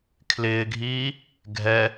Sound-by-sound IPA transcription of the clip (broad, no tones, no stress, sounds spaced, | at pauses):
kʰ l ɪː ɡʱ iː | ɡʱ ɛ